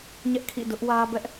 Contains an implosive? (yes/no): no